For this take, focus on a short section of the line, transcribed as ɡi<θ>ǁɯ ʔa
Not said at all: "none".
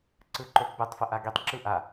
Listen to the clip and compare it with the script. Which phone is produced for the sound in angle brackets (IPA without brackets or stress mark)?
tˤ